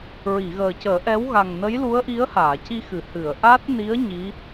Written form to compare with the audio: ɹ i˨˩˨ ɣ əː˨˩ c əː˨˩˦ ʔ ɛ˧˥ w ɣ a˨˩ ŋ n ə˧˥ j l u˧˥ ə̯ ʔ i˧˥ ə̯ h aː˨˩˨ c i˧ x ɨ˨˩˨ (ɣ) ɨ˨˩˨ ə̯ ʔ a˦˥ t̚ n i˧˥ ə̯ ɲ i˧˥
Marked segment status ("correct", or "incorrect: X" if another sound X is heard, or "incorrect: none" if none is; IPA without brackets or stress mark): incorrect: h